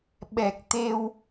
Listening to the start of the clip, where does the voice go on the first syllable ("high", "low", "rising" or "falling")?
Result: low